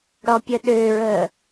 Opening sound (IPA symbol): ɽ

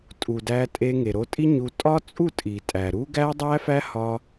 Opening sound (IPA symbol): tʼ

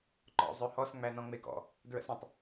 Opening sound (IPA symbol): ǃ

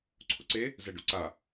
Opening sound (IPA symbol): ǀʰ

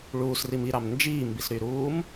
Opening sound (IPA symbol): ɭ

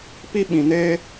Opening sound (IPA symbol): p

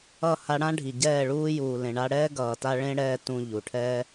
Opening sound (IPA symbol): ʌ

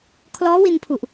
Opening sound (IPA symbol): kʰ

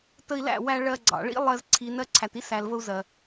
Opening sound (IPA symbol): t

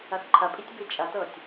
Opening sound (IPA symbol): ɐ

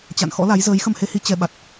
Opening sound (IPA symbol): t͡ɕ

